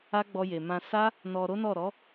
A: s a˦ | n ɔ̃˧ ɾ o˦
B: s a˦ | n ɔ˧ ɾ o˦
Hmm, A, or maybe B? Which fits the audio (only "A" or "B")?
B